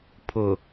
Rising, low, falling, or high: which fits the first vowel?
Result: low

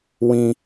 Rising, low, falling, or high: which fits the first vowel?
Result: high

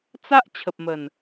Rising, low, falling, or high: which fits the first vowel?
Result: high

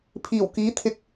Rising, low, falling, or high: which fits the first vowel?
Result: low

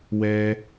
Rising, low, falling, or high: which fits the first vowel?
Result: high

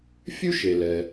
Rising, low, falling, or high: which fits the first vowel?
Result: high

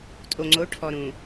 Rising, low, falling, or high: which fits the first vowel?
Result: low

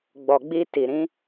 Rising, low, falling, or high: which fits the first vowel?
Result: low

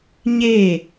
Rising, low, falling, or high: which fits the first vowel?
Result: falling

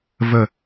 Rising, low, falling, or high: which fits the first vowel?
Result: falling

